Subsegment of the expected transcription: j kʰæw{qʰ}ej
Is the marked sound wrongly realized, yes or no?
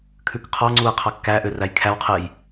no